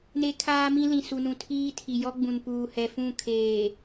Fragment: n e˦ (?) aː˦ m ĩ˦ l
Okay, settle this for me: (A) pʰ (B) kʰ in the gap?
B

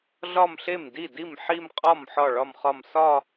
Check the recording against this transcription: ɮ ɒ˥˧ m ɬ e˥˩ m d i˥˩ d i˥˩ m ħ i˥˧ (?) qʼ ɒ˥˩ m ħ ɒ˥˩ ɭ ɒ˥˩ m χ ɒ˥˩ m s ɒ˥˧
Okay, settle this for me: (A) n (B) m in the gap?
B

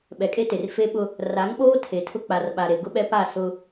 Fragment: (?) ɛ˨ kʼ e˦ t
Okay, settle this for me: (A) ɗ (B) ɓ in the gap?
B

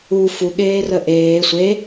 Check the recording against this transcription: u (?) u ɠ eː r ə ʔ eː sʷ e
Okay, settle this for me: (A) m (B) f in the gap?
B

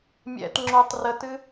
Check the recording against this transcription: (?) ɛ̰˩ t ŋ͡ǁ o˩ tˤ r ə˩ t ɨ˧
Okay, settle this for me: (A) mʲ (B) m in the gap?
A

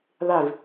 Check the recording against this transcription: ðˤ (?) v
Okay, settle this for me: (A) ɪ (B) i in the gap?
A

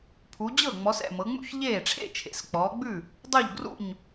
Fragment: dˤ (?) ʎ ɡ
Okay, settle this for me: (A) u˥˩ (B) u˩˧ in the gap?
A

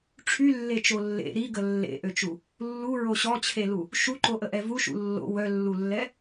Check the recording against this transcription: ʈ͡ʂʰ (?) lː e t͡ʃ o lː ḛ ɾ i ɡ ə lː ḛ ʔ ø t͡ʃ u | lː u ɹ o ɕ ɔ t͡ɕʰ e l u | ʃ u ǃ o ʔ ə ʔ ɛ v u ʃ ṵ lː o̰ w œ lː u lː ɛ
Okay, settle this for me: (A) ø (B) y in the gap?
B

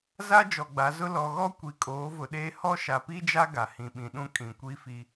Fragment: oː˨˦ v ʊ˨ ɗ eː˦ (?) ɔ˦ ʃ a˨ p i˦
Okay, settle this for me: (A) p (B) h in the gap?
B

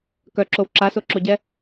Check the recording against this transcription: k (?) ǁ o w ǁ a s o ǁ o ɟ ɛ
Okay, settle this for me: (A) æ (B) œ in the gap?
B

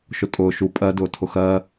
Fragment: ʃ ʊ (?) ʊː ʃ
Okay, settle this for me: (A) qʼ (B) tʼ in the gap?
B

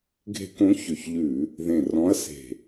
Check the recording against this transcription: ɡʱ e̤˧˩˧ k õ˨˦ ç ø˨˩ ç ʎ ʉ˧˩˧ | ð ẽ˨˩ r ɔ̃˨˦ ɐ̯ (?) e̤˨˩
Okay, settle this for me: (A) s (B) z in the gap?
A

